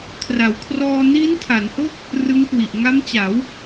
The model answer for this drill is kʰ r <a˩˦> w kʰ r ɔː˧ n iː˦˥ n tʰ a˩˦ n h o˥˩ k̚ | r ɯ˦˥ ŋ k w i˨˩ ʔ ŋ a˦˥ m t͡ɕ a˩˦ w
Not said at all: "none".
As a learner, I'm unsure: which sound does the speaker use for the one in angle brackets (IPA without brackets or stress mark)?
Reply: a˩˦